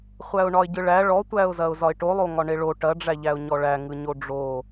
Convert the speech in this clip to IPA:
χʷæʊ̯ɳɒɪ̯ɟɯɭæ ɭɔtʷæʊ̯zɐʊ̯ zɒɪ̯ʈolˠo ŋɒɳeɭo ʈɐɖ͡ʐæʎæʊ̯ ɲɔɭæŋɯɲo ɖ͡ʐo

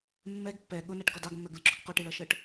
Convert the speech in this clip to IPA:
mːɛɡ pːɛ ɠʊnæʈɡɔ dɑɡmːɜɡlʲʊǁʊɡ qɔʈɪɭʌʃɜʈ

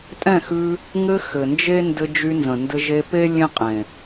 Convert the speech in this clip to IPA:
tʼɛ̃˦˨xʉ˧ | ŋɘ˧ xɘ˨nd͡ʒe˦ ndɘ˧d͡ʒy˧ nzə̃˨ndɘ˧ʒe˧pe˦ lʲẽ˦qʼẽ˨

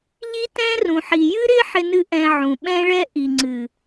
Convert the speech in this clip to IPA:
ʎi˦tɛ̃˦rũ˨ħi˨ jɨ˦ɾɪ˦ ħɪ˦nɨ˦ʔɛ̃˧ʕũ˨ ɓɛ̃˦ɭɛ˦ ʔi˨ŋ͡ǀɨ˨

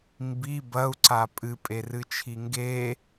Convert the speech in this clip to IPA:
mbi bɐu̯ǀa pʼɨpʼerɨt͡ʃʰi ŋɡe

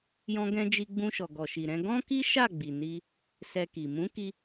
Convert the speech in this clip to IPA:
jɔ̃˧ɡɛ̃˧ d͡ʒi˧ɡ͡bũ˧ʃɔ˨ ɡɔ˨ʃi˨ɾɛ̃˧ ɡɔ̃˦ki˦ ʃa˦˨ɡ͡bi˨ ni˧ | sɛ˧ki˨ mũ˨˦ ki˧

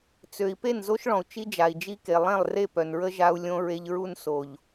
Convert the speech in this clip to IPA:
t͡sø˨i̯ pe˦˨nzo˦ʃɭɔ̃˨u̯ t͡ʃi˦d͡ʒa˨i̯ d͡ʒi˦ke˨ lˠɛ̃˦˨lˠre˦˨pœ˨nɹə˦ ʒa˦u̯lʲõ˦ɹe˦ʎ ɹu˦nso˨ʎ

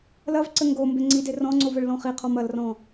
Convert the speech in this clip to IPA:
lɐvǀɘ ŋɡo mbeŋ͡ǀide rɔ̃ŋ͡ǀov əɭlɔ̃χiqʰɔm ɐlrɔ̃

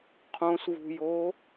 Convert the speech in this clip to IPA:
qʰõsvṳjo

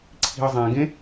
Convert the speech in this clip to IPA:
ǀʰi̤ə̯zˤɛ̃ɡẽ

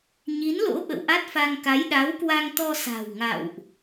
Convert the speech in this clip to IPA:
ɲi˨˦nlo̰˧˥ ɓə̰˧˨wʔa˦˥t̚fa˧ŋ ka˨˦jɗa˨˦wkwa˧ŋt̪ɔ˧ sa̤˨˩wŋa̰˧˨wʔ

